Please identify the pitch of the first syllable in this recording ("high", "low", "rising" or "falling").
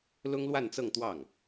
high